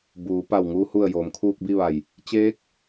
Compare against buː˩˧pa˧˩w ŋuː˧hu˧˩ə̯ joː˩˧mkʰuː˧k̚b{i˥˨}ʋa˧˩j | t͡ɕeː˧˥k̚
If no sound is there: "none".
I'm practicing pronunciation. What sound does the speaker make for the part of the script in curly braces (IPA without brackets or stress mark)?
i˥˨